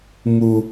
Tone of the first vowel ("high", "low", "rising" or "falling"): high